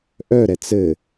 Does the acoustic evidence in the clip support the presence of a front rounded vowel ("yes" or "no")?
yes